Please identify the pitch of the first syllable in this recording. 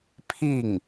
falling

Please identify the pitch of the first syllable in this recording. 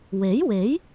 rising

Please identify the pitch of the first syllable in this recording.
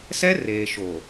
high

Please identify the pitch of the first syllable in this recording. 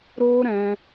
high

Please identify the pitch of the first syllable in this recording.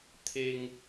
high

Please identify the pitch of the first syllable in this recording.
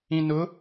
low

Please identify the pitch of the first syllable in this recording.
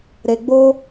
low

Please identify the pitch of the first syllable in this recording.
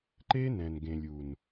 high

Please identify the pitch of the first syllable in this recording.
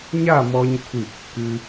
falling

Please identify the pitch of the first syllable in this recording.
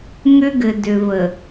high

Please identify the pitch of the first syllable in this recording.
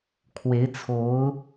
rising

